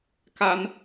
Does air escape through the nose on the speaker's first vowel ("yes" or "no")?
no